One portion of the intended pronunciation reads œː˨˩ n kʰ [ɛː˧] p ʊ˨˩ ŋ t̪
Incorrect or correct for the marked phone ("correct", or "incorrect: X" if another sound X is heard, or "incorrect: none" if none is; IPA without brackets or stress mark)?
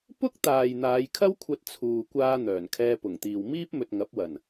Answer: correct